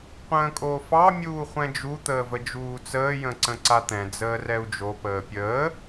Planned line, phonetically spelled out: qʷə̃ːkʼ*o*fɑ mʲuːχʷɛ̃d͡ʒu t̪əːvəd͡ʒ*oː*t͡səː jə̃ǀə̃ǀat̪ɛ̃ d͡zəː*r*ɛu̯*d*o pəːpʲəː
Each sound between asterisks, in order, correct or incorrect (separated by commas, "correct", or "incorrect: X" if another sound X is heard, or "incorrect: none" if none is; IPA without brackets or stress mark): incorrect: oː, incorrect: uː, correct, incorrect: d͡ʒ